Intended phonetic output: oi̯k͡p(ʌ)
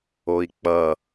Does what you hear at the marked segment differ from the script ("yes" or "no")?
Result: no